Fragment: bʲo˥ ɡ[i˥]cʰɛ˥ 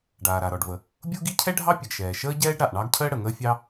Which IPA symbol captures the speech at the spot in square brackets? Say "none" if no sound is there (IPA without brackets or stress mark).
i˥